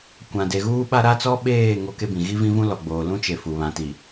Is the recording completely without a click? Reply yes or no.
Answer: yes